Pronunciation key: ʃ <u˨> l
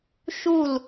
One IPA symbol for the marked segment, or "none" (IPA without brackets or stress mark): u˦˨